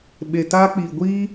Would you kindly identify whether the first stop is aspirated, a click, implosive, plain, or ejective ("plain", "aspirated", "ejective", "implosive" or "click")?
implosive